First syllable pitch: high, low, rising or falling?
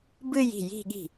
falling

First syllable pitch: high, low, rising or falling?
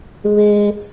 high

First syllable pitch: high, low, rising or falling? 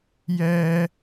high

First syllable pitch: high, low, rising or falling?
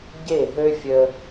falling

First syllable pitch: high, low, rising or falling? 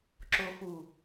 low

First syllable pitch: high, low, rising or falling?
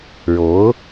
rising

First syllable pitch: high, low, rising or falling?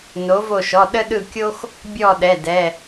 rising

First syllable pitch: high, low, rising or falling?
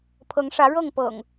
rising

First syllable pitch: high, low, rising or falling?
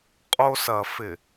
high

